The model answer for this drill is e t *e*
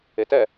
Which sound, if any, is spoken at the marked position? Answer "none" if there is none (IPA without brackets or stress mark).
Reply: ɛ